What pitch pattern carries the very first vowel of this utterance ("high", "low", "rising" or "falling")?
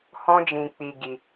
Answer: high